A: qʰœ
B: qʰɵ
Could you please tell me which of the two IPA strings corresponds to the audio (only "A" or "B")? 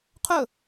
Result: B